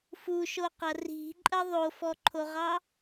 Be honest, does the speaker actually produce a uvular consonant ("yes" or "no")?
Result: yes